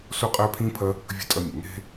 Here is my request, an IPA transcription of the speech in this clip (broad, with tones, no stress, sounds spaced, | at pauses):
s o˥ qʼ æ˥ pʰ ĩ˥ pʰ ɐ˥ | vʲ ə̤˥ tʼ ɐ˥ mʲ ə˩ ŋ e̤˥